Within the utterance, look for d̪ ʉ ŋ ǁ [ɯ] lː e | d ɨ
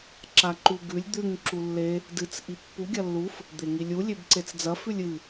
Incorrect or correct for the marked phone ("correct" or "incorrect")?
incorrect